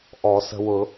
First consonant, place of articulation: glottal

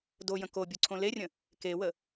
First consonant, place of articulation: alveolar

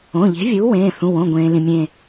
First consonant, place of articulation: palatal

